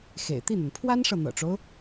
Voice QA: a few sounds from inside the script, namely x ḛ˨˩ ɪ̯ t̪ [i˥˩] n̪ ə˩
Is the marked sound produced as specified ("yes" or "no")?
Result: yes